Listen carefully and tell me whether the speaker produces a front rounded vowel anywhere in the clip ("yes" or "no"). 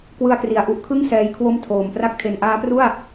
no